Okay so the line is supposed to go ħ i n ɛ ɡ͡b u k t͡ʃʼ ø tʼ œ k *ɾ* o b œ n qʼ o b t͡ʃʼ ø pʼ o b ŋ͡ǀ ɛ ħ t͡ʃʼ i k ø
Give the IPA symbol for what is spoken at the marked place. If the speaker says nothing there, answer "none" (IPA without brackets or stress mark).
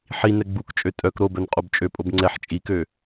ɾ